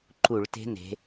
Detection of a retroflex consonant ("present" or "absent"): present